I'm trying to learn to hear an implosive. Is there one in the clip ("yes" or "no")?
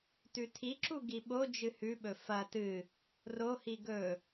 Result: yes